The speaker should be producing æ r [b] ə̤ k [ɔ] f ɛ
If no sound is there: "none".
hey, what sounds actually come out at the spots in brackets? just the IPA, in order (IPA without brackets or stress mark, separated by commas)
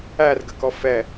ɡ, ɔ